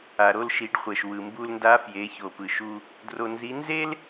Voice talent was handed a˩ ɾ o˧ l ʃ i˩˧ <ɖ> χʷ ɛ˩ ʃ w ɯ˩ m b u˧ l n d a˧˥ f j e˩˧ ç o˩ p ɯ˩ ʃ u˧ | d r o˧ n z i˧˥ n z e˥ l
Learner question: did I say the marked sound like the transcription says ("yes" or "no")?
yes